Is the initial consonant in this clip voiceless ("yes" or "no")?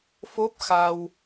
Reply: yes